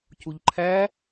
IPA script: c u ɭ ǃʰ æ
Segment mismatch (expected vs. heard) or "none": ɭ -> ʎ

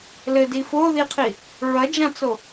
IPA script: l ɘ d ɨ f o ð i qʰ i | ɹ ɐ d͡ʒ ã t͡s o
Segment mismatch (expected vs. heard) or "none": ɨ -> i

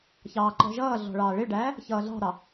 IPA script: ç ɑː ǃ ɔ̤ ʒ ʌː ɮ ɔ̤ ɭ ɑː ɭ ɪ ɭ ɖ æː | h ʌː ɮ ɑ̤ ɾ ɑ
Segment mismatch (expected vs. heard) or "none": h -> ç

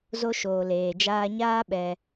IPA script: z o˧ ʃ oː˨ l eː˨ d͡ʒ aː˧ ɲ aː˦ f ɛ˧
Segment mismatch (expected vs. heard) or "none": f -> ɓ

